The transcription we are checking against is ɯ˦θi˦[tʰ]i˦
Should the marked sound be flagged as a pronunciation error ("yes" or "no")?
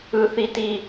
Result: yes